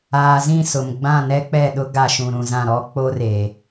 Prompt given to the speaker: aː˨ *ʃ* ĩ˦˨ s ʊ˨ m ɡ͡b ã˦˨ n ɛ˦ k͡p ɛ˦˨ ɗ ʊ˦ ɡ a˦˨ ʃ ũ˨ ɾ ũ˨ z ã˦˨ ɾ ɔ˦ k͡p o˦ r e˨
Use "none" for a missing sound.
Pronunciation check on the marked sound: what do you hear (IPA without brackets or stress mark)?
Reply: z